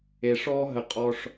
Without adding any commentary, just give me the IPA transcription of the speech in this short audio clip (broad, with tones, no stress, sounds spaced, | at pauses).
e˨ ʂ ɔː˦ ɦ ə˨ qʼ ɔ˦ ʂ